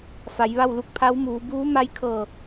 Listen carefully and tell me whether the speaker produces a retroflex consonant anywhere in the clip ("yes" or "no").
no